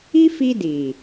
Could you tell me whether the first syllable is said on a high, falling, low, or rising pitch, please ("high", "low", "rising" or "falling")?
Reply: high